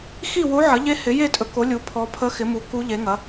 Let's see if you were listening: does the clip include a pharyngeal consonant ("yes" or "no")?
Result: yes